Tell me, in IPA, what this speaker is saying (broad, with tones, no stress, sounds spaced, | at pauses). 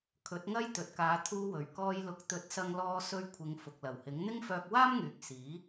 kʰ ɵ˨˥ t̚ ŋ ɐ˥ j t̪ ɵ˨ t̚ k aː˨˧ t̪ʰ uː˧ w ɵ˨˩ ɥ k ɔː˧ j l ʊ˨˥ k̚ t̪ ɵ˨˥ t̚ s ɐ˧ ŋ l ɔː˧ s ɵ˧ ɥ kʷʰ ɪ˨ ŋ f ʊ˨ k̚ l ɐ˨˩ w h ɪ˨˥ ŋ n̪ ɪ˥ ŋ f œː˧ k̚ w aː˥ m ŋ yː˨ k̚ s iː˨˥